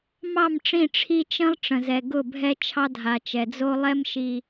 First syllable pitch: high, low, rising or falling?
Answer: falling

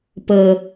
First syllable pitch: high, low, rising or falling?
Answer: low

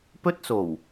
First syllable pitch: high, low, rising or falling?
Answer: high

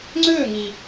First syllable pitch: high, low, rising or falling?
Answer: falling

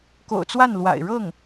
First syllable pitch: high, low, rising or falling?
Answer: low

